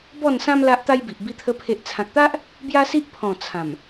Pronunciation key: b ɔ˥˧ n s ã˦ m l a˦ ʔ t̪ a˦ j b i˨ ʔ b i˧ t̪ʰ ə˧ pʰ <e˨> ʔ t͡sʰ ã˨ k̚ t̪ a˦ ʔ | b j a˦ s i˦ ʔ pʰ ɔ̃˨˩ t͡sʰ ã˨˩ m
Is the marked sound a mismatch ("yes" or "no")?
no